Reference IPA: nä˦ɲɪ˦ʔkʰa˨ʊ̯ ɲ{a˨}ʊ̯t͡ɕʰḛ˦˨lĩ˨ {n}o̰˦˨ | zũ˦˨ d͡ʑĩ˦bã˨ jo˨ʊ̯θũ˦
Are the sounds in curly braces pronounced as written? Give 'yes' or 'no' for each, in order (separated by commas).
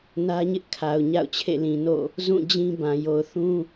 no, yes